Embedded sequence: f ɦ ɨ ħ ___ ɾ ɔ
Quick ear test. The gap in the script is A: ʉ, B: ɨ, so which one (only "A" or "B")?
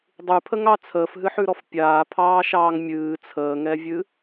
A